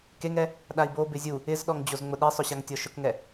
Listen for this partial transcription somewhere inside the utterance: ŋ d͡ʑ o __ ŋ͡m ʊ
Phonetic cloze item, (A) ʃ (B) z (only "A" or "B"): B